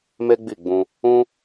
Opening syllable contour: high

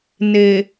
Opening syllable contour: low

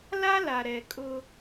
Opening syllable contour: high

